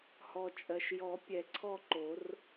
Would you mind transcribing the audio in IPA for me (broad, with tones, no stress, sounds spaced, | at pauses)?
h ɔ˩ t͡ʃʼ ɜ˩ ʃ j ɔ˨˩˦ pʲ ɛ˩ ǀʰ ɔ˦˨ ǃ o˨˩˦ r